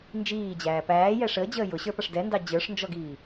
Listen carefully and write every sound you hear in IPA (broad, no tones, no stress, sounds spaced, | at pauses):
n d͡ʒ iː d͡ʑ æː p æː j ɛ ʂ əː d͡ʑ əː j ʊ ɕ ə˞ p ʌ ʂ d ɛ n d ɑ d͡ʑ ə˞ ʂ n d͡ʒ ɔ ɡ iː